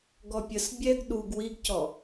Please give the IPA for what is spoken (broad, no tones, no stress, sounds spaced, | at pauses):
ɡ ɔ pʲ ə s bʲ ɛ ɡ ɗ u ɡ w i ɡ c ɔ